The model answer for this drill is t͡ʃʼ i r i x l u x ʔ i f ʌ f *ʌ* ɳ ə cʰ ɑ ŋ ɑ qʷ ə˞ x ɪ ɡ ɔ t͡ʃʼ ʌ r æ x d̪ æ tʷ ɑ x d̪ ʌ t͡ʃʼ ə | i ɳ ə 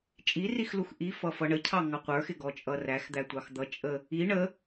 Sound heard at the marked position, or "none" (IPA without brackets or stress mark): ʌ